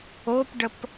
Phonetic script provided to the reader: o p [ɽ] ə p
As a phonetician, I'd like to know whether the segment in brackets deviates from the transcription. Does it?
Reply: yes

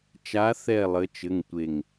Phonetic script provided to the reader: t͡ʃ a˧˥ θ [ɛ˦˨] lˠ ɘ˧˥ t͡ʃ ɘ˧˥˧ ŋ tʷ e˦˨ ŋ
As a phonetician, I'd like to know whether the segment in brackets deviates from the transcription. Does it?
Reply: no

